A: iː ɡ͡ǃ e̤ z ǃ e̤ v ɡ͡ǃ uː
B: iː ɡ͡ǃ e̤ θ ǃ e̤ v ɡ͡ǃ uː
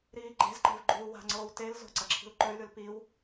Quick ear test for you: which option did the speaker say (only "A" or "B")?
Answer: A